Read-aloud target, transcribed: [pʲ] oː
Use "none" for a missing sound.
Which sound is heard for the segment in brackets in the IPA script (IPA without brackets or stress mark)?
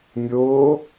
mʲ